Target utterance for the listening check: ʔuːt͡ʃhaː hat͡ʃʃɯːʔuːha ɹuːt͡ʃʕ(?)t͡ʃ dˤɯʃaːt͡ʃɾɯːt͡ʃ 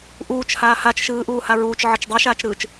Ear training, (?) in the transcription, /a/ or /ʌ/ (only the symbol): ʌ